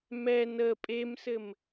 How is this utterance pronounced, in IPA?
m ɛ n ə pʼ e m s ɘ m

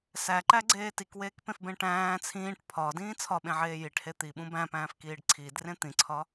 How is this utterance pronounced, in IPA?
s æ ǃ æ ɡ͡ǀ eː t i k w eː k p ẽ f b ẽ ʈ æ̃ː t͡sʰ ĩː ʈ pʰ ɒ d ĩː t͡sʰ ɒ ɓ ẽ ʕ eː j i ʈ h e t̪ i ɓ ũ b æ̃ p æ̃ː f k iː ɖ ǀʰ iː d r ẽ t̪ ĩ ǀʰ ɒ

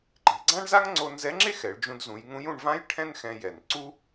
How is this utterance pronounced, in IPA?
ǃ i̤˩˧ ɡ͡ǀ ã˥ ɳ z a˥ ŋ ŋ͡ǀ o˧ n z ɛ˧˥ ŋ͡ǁ e˥ x ɛ˩˧ ɭ d͡ʒ ũ˧ d z ũ˩˧ j ŋ ũ˧˥ j ũ˧ ɳ v ã˥ j ʈʰ ɛ̃˥ n x ɛ̃˧ j ɛ˩ n ǀ u˥

